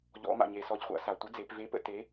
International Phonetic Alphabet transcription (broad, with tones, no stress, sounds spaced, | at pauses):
ʎ ɔ̰˩˧ m a̰˩ ɲ e˩ s ɔ˩˧ ʎ χʷ a̰˩˧ s a˩ tʷ ə˨˥ d͡z e˩˧ p v e˨˥ p ə̰˩˧ t e˩˧